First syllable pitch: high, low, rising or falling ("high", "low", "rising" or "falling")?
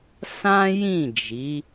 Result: high